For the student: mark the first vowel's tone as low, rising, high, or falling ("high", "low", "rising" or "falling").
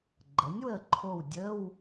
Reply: rising